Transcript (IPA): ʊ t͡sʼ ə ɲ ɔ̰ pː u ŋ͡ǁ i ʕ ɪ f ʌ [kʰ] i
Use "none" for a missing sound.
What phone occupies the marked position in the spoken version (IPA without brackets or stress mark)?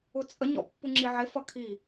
kʰ